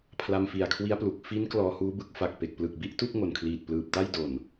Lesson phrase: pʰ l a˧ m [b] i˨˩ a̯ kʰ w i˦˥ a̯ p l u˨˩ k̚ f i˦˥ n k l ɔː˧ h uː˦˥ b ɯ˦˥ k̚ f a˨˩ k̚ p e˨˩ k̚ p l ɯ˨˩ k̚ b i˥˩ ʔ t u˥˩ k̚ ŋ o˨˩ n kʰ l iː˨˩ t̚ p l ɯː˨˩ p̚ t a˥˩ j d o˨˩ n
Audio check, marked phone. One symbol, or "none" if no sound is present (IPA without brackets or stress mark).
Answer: f